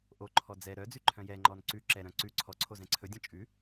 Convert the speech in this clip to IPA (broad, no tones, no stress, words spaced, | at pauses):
ʔoǃʰɔ d͡zɛ ɾœd͡zʉ ǃʰœ̃jɛŋ͡ǃɔn ǀʉ ǁɛɾœ̃ ǀʉ ǀʰɔǀʰoz ɛ̃ǀʰɵdʲɔ̃ t͡ʃʼʉ